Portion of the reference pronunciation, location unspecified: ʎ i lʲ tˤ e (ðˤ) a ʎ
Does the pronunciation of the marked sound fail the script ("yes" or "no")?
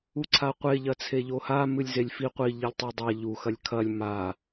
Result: yes